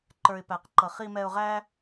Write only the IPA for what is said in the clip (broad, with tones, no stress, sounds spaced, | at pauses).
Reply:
ǃ ə˞˨ ɪ̯ p æ˨ q ǃ ʌ˨ χ i˧ m ɛ˧ ʊ̯ ʁ æ˦